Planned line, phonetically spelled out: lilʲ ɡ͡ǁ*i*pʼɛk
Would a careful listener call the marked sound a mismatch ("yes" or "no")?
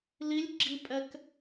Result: no